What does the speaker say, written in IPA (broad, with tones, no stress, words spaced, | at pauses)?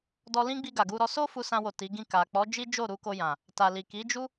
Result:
dɔ˧lĩ˦ɡ͡bi˧ ɡa˨ɡu˧ɾɔ˦ so˦ fu˧sã˧wo˨ ti˨˦ɡĩ˦˨ ka˨ k͡pɔ˨˦d͡ʒi˦d͡ʒo˦˨ ɾu˧ko˧jã˨ | ta˨li˨ ki˨˦d͡ʒu˦